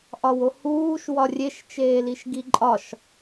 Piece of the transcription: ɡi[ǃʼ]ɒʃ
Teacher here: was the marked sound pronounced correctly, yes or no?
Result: yes